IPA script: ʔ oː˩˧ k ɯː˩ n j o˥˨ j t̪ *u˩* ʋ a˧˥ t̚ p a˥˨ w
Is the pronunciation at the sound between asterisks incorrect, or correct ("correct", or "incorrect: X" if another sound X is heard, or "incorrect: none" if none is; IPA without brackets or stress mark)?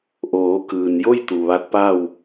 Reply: correct